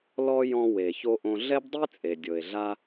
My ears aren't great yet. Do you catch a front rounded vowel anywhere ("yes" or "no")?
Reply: no